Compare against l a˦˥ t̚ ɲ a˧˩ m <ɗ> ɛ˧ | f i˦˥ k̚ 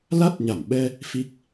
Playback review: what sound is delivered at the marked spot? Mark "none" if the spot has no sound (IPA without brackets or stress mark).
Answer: ɓ